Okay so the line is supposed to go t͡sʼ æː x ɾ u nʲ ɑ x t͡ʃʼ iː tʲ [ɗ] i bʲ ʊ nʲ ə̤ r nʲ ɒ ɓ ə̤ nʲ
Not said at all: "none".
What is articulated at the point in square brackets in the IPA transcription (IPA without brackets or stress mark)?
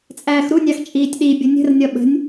ɗ